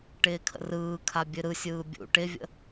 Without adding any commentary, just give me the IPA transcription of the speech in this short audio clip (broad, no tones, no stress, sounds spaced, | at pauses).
ʈ ɪː kʰ ə̰ r ɯː kʰ a bʲ ɨ ɾ ɯ sʲ ɯː bʲ ṵ ʈ ɪ vʲ ə̰